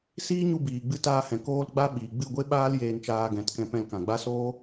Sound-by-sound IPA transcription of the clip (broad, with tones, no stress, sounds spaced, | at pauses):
s iː˦ ɲ u˧ b iː˨ ɡ͡b ɨ˧ t aː˧ h ɛ̃˨ k oː˧ l ɡ͡b a˧ ɓ iː˨ ɡ͡b ɨ˦˨ ɡʷ e˦ ɓ aː˦ l j eː˧ n t͡ʃ aː˧ ɡ ɛ̃˨˦ t k ɛ̃˧ p ɛ̃˧ l k ã˨ ɡ͡b a˦ s oː˦